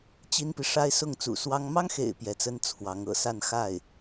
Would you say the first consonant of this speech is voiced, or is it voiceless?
voiceless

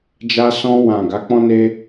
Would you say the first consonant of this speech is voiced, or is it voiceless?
voiced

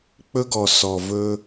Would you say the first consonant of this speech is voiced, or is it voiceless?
voiceless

